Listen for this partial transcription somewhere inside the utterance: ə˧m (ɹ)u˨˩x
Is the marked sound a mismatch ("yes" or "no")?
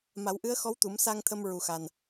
no